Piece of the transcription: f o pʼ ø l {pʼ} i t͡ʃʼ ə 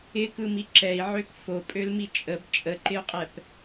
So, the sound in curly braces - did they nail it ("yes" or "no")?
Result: no